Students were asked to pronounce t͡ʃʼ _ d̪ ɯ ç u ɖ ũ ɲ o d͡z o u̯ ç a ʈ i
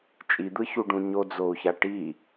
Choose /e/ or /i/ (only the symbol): i